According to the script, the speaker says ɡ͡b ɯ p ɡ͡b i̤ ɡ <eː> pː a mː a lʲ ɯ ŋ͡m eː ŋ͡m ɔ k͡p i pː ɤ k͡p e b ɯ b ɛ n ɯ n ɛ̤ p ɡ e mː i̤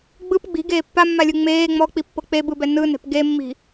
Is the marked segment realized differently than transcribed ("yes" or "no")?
no